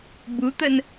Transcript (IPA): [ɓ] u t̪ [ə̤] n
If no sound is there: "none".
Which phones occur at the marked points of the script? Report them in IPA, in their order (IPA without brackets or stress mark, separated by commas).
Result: b, ə